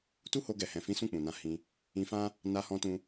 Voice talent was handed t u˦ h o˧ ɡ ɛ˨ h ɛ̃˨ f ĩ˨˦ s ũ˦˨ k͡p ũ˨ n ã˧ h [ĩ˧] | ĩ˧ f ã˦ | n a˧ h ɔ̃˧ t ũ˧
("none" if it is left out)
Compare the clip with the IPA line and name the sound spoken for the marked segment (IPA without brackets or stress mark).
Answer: ĩ˧